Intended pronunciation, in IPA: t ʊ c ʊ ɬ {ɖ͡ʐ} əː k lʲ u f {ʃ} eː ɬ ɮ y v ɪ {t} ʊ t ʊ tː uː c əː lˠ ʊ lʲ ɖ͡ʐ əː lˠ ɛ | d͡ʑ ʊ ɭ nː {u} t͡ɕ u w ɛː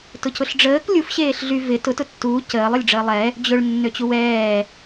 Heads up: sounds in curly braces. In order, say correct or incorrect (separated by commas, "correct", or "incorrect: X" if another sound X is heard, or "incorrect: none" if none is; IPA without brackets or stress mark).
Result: correct, incorrect: ɕ, correct, incorrect: ø